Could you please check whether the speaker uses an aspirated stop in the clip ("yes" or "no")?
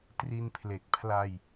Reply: yes